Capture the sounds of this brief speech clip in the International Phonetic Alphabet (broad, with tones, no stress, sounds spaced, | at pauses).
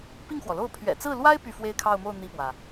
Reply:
p i˥˩ ŋ x w ɔ˩ l o˥˩ ʊ̯ pʰ ɥ ɛ̰˨˩ t͡s ɹ̩˥˩ l w a˥ ɪ̯ p y˥˧ f w e˥˧ ɪ̯ kʰ ɑ˥˧ ʊ̯ m o˥˧ ʊ̯ n̪ i˥˩ p w ä˩